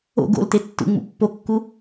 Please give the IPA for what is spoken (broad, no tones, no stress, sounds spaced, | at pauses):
o̰ ɡ o̰ l t e tː ṵ ŋ͡m ṵ pː o kː u